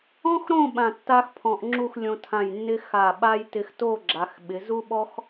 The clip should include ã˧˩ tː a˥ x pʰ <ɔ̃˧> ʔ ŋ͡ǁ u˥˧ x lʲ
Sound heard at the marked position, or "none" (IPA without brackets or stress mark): ɔ̃˧